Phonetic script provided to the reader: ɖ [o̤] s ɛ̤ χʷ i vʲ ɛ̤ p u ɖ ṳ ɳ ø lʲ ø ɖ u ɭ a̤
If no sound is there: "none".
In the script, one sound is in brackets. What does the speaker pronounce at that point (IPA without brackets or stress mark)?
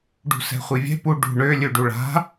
ṳ